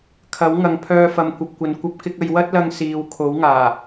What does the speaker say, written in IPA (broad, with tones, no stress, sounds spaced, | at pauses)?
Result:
kʰ ɐ˨˥ w ŋ ɐ˨ ŋ pʰ œː˧ f ɐ˨ m kʷ ɐ˨ p̚ kʷ ɐ˨ n kʷ ɐ˧ p̚ k ɪ˧ k̚ ɐ˨˧ j w ɐ˥ t̚ l ɐ˧ ŋ s iː˨˧ w kʰ o˨˥ w ŋ aː˨˩